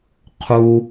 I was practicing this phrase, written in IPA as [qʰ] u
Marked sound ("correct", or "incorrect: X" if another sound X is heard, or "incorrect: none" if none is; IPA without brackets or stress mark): correct